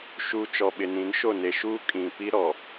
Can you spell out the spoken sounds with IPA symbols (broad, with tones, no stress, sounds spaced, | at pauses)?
ʃ uː˨ t͡ʃ ɔ˨ ɓ ɪ˨ n ĩ˨˦ n ʃ o˦˨ n e˨ ʃ uː˦ kʼ ĩ˨ p i˦ ɾ ɔ˨